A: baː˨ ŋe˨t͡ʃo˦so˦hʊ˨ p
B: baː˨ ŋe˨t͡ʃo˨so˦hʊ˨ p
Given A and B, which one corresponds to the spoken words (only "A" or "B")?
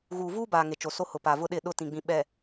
B